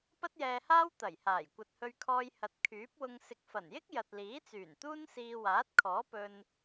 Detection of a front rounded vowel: present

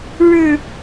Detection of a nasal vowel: absent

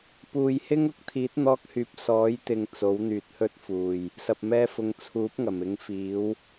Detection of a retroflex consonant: absent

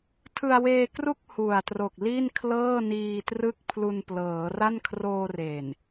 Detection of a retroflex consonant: absent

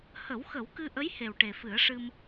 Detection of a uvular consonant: absent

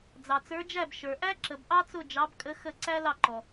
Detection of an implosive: absent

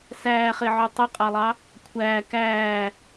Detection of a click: absent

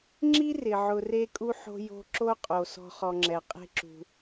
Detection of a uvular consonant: present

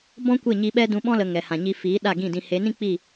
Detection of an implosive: present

